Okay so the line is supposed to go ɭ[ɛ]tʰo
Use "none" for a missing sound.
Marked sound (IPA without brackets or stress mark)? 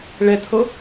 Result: ɛ